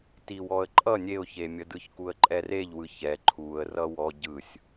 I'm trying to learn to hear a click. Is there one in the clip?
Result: yes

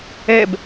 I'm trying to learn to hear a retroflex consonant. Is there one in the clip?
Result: no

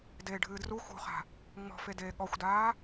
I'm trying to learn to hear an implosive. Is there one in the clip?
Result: yes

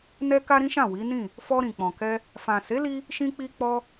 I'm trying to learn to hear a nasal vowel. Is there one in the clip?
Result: yes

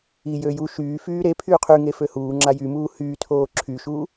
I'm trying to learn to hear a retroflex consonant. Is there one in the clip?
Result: no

